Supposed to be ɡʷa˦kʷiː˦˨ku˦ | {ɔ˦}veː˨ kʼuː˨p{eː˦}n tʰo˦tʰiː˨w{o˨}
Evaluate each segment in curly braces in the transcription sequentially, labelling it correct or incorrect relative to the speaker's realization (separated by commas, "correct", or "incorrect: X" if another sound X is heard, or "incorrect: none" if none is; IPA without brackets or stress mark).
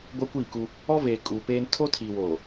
correct, correct, incorrect: oː˨